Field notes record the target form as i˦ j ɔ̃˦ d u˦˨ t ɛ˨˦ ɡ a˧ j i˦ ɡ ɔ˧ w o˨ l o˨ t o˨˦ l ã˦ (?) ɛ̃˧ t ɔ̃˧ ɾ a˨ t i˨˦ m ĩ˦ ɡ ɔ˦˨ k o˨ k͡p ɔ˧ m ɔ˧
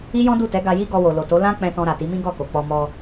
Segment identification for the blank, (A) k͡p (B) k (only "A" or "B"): A